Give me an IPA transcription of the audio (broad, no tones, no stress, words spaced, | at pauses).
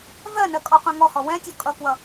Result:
vɜnɜ kʼɔqʷɛ̃ŋɔhɔ wɛ̃tʲɔ kʼʌkwʌ